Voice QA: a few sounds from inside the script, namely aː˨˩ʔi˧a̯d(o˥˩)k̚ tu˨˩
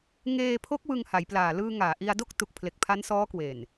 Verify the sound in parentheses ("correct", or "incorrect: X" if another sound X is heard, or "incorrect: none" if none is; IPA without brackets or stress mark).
correct